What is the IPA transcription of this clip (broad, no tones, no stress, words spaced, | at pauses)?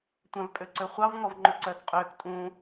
tʷæ̃vpʼøǀøχʷɑv ŋɔvŋ͡ǃɵǀœːkqʼøːk tʼũ